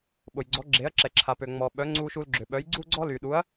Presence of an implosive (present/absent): present